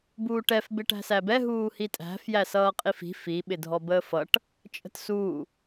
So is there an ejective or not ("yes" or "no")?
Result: yes